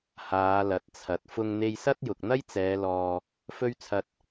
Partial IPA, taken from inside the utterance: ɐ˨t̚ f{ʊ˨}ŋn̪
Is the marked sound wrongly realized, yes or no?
yes